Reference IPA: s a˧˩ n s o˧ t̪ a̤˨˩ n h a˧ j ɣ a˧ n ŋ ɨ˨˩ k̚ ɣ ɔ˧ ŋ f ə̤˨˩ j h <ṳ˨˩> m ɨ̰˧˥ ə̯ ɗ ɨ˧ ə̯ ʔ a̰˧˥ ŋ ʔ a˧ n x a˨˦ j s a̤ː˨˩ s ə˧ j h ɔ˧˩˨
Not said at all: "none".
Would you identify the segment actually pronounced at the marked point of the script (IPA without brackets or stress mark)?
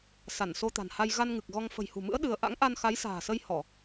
ṳ˨˩